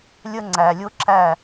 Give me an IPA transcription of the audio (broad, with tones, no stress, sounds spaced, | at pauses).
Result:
lʲ ə˦ ŋ͡ǀ æ˨ lʲ ʊ˦ ǁ æ˦˨